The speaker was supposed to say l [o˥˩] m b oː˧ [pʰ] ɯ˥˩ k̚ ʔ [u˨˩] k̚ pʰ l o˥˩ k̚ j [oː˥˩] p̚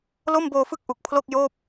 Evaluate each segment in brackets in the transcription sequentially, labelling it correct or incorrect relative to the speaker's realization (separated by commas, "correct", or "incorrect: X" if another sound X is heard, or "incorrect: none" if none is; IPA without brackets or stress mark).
correct, incorrect: f, correct, correct